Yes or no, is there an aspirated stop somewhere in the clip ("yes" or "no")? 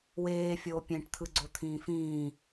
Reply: yes